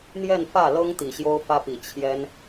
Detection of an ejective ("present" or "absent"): absent